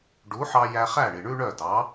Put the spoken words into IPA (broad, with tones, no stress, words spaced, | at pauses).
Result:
ɖu˩˥ħɑ˧ jæ˧χæ˥˩ ɳi˩ɳʉ˥ɳœ˥˩ dɑ˩˥